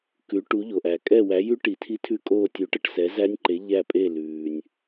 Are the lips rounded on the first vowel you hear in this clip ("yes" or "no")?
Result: yes